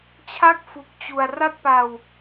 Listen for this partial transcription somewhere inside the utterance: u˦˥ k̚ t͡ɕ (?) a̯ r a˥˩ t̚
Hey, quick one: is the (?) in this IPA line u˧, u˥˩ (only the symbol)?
u˧